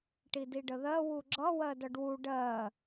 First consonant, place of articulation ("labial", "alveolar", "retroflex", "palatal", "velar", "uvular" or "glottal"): retroflex